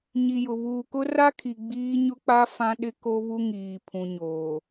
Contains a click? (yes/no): no